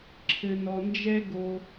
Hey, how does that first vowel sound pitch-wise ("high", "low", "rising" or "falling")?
low